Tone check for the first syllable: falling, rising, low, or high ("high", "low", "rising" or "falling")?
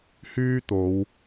high